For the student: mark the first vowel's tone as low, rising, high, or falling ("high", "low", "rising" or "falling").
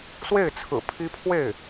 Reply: falling